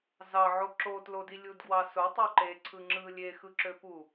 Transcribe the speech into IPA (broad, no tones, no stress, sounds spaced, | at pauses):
z ɑ ʕ o ǁ o t l o d i lʲ u d ɡ w ɑ s o tˤ ø ǃ e ǀʰ ɯ ŋ͡ǁ ɯ lʲ e x ɯ ǁ ø p u